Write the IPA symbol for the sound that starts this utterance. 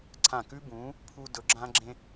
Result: ǀʰ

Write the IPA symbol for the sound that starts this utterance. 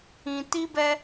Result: ĩ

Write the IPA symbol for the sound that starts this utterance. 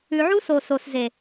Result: ʉ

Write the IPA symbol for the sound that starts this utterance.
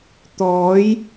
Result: t̪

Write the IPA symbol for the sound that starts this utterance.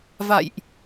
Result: v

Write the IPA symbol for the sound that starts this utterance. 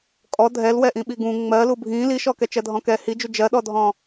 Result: kʼ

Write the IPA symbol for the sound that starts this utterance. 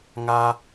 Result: ŋ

